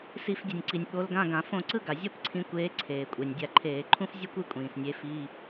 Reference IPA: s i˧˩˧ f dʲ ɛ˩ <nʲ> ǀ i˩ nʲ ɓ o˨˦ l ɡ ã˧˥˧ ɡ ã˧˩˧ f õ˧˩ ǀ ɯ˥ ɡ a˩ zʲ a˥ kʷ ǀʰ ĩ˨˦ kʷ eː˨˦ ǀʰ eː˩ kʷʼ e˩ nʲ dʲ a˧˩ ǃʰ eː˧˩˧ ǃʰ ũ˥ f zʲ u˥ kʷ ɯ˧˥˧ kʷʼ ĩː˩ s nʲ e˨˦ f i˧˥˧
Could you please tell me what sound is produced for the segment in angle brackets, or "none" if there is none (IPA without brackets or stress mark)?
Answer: nʲ